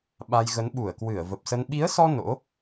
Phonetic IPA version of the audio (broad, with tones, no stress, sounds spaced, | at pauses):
ɓ a˧ j ɣ ə˨˦ n ɓ u˧˩ ə̯ k w ɨ˧˩ ə̯ v ə˨˩ p̚ s ə˧ n ɓ i˨˦ ə̯ s ɔ˧ n o̰˧˥